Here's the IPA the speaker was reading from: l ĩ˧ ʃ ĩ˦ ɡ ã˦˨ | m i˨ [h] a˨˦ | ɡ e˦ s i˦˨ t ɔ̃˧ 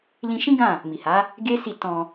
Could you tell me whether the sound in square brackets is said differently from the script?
no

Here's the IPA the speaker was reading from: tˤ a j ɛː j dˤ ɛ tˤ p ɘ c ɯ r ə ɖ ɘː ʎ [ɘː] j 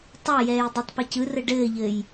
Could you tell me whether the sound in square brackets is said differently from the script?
no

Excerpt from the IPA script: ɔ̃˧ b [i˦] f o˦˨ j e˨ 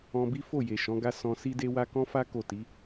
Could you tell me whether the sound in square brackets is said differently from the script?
no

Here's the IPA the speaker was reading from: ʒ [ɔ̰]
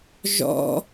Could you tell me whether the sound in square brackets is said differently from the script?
no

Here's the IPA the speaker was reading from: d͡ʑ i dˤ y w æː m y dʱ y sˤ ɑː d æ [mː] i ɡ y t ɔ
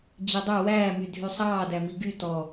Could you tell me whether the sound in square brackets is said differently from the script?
yes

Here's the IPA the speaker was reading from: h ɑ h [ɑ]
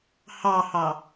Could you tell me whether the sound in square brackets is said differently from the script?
no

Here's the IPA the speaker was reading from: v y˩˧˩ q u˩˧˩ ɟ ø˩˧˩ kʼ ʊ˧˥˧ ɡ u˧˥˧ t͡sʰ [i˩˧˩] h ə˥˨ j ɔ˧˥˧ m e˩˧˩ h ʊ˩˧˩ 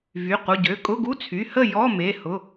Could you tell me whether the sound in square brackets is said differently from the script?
yes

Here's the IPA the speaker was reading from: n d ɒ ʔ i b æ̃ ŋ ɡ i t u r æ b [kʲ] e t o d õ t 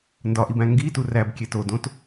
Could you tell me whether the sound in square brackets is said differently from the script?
no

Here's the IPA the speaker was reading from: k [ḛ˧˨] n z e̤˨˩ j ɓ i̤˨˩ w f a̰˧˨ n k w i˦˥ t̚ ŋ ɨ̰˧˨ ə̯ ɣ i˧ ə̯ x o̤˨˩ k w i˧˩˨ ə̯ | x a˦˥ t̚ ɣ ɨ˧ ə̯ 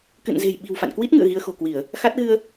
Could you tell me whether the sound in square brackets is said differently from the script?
yes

